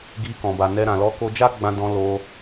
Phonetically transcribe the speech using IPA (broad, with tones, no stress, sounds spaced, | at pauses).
ɡ i˧ k ɔ̃˨ b a˨ n ɛ˧ ɾ ã˨ l ɔ˧ k o˧ d͡ʒ a˦ ɡ͡b ã˧ d ɔ̃˧ l o˧